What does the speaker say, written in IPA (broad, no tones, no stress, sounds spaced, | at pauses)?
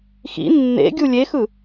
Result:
x ḭ nː ḛ ɡʲ u lʲ e x ɯ